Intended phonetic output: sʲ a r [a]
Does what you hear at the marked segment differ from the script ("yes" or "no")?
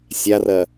yes